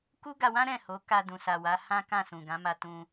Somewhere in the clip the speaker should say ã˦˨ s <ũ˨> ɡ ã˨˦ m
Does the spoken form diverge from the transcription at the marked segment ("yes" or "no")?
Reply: no